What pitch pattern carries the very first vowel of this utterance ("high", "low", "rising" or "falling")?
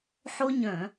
high